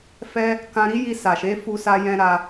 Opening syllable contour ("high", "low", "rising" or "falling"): high